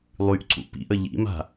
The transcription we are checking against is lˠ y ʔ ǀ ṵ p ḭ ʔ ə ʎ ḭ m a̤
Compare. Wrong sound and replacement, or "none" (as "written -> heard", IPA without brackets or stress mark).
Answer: none